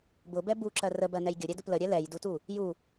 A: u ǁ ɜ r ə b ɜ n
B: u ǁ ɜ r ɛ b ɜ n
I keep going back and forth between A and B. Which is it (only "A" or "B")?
A